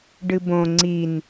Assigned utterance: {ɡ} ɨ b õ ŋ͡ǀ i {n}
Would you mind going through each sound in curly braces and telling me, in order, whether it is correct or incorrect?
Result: incorrect, correct

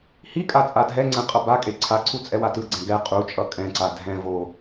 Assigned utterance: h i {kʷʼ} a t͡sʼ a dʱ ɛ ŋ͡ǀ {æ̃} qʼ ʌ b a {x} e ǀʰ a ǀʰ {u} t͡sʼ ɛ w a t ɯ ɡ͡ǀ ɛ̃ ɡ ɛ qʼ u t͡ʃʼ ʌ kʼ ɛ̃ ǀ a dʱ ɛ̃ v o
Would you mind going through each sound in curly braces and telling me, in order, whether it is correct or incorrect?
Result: incorrect, incorrect, incorrect, correct

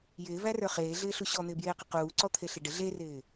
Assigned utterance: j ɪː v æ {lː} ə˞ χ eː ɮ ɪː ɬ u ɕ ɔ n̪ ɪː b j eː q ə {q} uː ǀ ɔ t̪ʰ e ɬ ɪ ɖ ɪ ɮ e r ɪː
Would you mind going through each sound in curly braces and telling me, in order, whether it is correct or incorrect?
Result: incorrect, correct

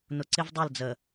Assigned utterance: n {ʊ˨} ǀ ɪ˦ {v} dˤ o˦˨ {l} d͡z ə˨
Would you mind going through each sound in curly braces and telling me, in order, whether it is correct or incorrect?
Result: correct, correct, correct

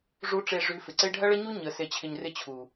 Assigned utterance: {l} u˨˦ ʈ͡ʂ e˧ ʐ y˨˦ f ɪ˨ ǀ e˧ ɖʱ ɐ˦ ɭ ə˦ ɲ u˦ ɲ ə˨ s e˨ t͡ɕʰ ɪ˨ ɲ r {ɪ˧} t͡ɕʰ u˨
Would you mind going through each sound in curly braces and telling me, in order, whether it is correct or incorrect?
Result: incorrect, correct

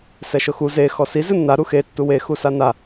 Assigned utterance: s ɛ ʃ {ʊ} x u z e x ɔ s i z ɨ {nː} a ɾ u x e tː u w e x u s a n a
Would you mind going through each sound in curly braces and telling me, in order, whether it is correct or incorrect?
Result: correct, correct

